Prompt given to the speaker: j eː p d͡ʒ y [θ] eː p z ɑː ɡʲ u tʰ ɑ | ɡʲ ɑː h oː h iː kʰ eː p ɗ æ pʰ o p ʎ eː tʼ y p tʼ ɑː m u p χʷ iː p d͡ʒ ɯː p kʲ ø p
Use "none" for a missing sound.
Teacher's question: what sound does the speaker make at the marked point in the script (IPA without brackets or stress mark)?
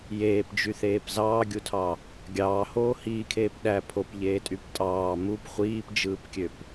θ